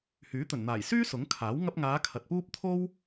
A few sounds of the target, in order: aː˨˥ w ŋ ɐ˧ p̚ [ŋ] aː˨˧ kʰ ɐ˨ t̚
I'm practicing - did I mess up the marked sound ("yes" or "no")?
no